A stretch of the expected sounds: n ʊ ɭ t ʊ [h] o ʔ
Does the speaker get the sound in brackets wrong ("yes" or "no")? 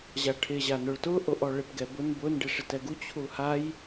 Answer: yes